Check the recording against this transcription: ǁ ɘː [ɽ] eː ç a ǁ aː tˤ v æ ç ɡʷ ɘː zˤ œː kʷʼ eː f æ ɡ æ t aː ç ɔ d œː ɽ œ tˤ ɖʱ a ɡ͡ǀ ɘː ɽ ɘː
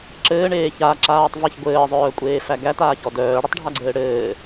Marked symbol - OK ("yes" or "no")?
no